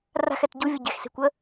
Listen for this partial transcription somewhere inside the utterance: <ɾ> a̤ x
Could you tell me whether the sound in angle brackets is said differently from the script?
yes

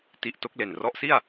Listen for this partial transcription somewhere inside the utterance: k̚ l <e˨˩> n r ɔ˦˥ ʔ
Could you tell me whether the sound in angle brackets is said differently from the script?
no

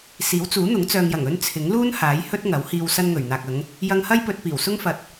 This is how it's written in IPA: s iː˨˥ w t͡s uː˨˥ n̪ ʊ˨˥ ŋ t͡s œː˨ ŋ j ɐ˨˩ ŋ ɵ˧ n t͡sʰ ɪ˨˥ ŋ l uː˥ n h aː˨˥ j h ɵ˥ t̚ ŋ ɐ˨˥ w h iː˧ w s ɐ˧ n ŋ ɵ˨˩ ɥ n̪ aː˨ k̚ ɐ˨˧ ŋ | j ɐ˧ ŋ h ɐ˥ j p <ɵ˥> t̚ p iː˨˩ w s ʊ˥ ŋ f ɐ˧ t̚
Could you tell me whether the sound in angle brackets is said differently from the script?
yes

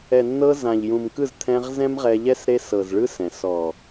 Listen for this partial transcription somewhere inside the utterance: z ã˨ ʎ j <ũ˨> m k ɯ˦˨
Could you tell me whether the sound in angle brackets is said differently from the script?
no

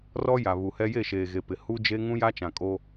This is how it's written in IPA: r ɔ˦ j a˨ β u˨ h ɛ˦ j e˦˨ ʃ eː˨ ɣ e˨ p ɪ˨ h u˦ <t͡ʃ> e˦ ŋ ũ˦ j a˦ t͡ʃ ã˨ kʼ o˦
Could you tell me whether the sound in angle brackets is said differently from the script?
yes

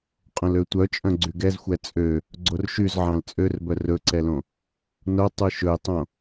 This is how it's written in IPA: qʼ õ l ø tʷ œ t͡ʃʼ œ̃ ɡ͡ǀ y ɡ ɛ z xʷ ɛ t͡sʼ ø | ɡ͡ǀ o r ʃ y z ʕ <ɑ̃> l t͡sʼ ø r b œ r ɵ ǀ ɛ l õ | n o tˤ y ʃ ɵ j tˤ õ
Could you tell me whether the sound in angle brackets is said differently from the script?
no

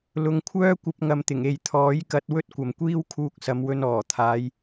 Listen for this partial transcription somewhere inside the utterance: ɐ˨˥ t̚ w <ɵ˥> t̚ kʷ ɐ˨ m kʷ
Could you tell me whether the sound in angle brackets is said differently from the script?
no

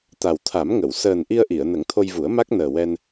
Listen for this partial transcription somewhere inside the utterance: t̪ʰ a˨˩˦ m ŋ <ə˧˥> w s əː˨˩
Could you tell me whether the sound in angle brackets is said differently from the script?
yes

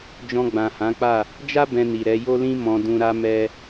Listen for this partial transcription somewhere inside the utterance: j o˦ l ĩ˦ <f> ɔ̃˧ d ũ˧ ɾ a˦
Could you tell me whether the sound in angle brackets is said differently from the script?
yes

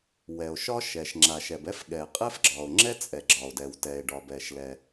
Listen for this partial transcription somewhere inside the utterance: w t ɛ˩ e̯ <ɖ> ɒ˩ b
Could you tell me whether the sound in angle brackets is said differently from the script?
no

